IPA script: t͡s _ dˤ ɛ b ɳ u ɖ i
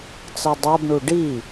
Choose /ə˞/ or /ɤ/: ɤ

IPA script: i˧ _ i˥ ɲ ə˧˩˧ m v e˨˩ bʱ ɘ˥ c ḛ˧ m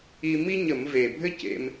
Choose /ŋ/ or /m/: m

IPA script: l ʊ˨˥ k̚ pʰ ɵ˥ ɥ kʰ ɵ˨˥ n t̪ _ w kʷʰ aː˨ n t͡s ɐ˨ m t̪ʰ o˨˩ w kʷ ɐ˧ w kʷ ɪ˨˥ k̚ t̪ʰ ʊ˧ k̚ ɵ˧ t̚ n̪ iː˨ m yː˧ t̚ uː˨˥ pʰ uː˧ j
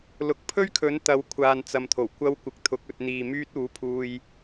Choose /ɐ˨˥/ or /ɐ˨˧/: ɐ˨˥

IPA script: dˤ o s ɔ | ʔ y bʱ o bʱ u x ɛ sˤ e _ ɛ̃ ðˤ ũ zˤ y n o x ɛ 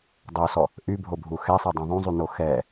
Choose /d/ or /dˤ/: dˤ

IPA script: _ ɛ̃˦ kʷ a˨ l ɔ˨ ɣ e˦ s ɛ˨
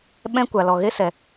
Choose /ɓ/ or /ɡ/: ɓ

